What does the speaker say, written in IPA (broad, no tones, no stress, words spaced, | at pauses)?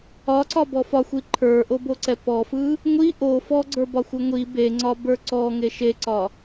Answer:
ɒǀɒbɔ fɒxʷi ǃʰə˞ʔoboǀɛ pɔfɯ | ŋʷi ʔo fɔɡ͡ǀə˞bɒxʷɯ ŋʷi beŋ͡ǀɒbə˞ ǀɔŋe ʃeǀɒ